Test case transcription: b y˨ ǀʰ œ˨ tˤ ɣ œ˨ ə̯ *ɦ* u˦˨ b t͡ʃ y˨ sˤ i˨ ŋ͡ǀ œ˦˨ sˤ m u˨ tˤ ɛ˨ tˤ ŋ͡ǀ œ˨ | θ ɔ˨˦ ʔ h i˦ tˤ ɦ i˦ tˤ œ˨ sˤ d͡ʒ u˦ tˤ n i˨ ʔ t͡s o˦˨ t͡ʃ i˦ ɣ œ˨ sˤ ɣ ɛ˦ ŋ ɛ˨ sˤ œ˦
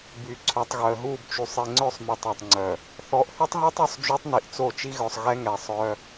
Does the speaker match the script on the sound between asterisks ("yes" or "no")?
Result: yes